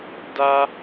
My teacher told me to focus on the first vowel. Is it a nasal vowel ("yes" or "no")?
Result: no